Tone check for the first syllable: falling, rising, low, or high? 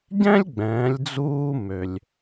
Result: high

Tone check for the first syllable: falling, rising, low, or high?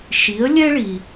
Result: rising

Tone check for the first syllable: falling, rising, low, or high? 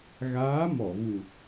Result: rising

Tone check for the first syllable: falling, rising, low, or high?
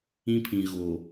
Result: high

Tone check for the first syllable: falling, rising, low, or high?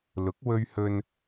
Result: rising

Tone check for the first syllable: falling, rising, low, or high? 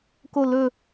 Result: falling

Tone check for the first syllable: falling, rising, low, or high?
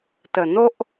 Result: low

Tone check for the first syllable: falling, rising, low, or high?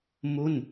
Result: falling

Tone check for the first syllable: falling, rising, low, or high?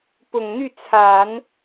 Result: low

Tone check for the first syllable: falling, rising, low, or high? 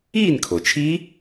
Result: falling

